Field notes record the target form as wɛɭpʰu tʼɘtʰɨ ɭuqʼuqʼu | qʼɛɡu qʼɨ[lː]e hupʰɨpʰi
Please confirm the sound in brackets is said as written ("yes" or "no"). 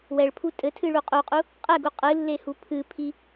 yes